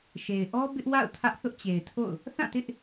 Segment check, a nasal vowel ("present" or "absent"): present